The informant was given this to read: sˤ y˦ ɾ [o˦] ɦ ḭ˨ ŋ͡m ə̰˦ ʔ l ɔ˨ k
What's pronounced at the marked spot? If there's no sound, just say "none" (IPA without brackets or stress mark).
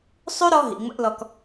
ɔ˦